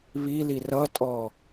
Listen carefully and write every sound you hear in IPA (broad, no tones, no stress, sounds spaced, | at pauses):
β i l i r ʌ tʼ ɔ